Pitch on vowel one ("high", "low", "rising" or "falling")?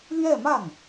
falling